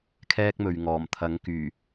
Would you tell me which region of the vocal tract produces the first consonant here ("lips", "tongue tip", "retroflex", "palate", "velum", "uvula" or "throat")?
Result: velum